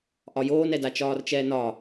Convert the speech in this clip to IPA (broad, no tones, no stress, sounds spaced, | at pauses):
ʔ ɒ j oː n ɛ d a t͡ʃ ɒː r t͡ʃ ɛː n ɒ